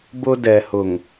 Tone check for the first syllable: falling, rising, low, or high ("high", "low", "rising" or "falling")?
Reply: high